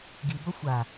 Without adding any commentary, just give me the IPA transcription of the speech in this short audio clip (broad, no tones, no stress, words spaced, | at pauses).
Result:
ɡi bʌxʷa